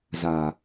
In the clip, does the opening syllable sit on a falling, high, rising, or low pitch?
low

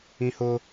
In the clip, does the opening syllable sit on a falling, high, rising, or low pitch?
high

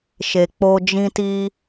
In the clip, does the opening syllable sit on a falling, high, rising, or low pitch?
low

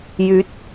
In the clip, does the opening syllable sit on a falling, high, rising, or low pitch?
rising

